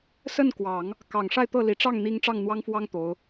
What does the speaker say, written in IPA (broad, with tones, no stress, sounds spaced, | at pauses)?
s ə˥˩ n k w ɑ˨˩˦ ŋ | k ɑ˨˩ ŋ ʂ a˥˧ ɪ̯ t̪ ɤ˥˩ l i˨˩ ʈ͡ʂ ɑ˥˩ ŋ n̪ i˥ ŋ ʈ͡ʂ ɑ˥˩ ŋ n̪ w ɑ˥ ŋ f w ɑ˥ ŋ t̪ o˧˥ ʊ̯